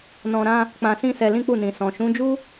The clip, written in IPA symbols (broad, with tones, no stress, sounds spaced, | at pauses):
n ɔ̃˧ ɾ ã˦ | k͡p ã˧ s ĩ˦ s ɛ˧ l ĩ˦ k͡p u˦˨ n ĩ˨ s ɔ̃˨ ʃ ũ˨˦ d͡ʒ u˦